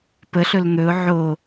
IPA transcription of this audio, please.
p ə ɬ ɵ l n̪ ɵ ʊ̯ ʕ o

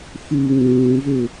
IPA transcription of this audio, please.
f u ŋ ũː v ø

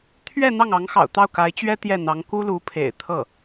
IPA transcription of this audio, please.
t̪ʰ ɥ ɛ˥˧ n̪ ɑ˥˩ ŋ ɑ˧˥ ŋ x ɑ̰˨˩ ʊ̯ t̪ ɑ˥˩ ʊ̯ k a˧˥ ɪ̯ t͡ɕ ɥ ɛ˥ t̪ j ɛ˥˩ n̪ ɑ˧˥ ŋ k u˥ l u˧˥ pʰ ḛ˨˩ ɪ̯ t̪ʰ ɤ˥˩

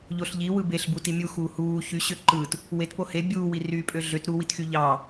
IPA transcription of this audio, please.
ʎ o ɬ ʎ i w ɯ b e ɬ b u t i mʲ u x uː h uː ç y ɕ ø ǃ ɯ t | w e t p o h e bʲ uː w i r yː pʼ ø ɮ ø t ɾ u w i t x y ʎ ɑ

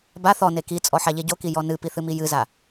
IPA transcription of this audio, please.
b a θ ɔ n e k i t͡sʼ ɔ ħ a ʎ e ɟ o k i j ɔ n ɨ p i θ ɨ m i j ɨ z a

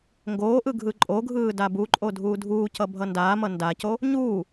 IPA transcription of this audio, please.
ŋ ɡ oː ʔ ɯ ɡʱ ɯ ǃʼ o ɡʱ ɯː d a b u ǃʼ o dʱ uː dʱ uː c ʌ bʱ ʌ n d aː m ʌ n d a c o | ɲ uː

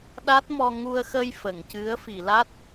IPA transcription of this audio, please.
ɗ a˦˥ t̚ m ɔ˧ ŋ u˧ ə̯ x ə˧ j f ə˨˩˨ ŋ c ɨ˧˥ ə̯ f i˨˩˨ l a˦˥ t̚

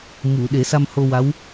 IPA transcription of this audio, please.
m u˨˩˨ ɗ e˨˩˦ s a˧ m h o˧ w a˧˥ w

